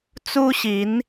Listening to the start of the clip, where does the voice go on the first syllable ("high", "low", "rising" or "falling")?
high